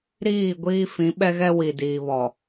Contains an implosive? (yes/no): yes